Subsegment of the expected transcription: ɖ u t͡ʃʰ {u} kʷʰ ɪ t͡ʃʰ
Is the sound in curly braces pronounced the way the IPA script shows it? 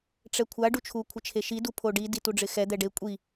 yes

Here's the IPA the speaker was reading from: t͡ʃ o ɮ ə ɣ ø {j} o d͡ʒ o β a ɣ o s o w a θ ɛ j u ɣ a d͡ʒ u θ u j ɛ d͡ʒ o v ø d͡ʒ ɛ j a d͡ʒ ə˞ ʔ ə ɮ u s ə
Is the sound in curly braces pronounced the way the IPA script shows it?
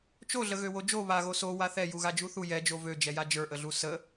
no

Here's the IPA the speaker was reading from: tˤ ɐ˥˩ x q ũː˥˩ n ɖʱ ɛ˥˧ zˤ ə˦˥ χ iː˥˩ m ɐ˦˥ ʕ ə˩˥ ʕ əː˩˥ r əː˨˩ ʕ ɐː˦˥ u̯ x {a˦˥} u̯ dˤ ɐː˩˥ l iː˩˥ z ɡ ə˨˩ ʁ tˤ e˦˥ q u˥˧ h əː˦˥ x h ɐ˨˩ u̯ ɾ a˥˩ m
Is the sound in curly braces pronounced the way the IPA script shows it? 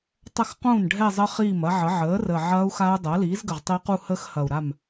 yes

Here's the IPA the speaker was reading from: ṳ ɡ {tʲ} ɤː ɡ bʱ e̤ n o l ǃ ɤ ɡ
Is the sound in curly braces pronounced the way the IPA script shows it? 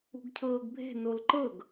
no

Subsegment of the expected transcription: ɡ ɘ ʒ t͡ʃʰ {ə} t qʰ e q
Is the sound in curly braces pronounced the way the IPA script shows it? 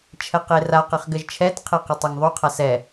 no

